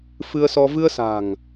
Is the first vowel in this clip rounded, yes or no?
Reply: no